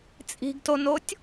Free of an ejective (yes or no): no